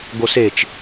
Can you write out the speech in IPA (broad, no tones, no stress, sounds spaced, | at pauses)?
ɡ o s e t͡ʃ